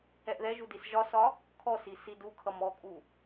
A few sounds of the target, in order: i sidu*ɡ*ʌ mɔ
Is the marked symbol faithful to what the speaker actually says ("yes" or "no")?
no